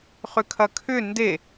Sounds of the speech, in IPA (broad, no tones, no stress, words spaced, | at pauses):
χʏkʰɐkʰʏ nde